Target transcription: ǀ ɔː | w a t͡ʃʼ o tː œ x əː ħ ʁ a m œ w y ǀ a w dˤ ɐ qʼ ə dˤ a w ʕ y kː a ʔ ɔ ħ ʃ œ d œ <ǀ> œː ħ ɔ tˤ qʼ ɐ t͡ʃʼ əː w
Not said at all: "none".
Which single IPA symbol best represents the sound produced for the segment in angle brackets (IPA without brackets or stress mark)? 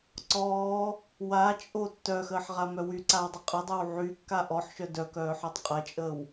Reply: k